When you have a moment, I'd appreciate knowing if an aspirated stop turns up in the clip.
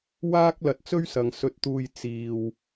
no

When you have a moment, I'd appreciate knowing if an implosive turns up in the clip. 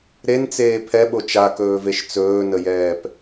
yes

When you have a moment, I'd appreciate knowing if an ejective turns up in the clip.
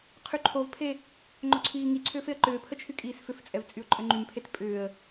yes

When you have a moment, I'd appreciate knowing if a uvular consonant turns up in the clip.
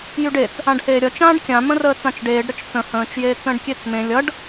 no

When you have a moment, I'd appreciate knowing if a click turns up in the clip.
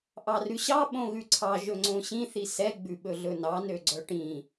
yes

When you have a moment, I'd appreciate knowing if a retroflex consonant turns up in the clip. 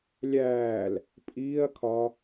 no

